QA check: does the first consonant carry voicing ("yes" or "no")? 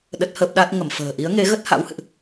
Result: yes